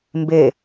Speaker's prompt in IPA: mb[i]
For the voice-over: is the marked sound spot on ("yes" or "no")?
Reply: no